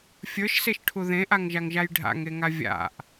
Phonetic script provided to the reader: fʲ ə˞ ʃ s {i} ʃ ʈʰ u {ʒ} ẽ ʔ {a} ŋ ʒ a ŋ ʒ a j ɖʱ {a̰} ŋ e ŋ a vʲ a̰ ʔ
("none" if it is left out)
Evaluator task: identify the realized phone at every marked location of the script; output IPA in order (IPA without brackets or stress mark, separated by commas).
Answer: e, ð, a, a̰